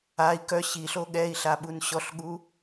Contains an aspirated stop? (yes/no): no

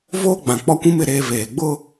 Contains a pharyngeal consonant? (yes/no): no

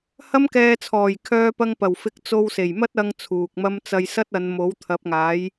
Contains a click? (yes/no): no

